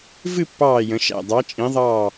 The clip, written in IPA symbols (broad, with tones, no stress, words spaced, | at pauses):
vɨ˥˧pːɑː˧˩ jə̃˩˧ʃæ̰˧˩ dˤɑ˩˧t͡ʃʼĩ˩˧ðˤɑː˧˩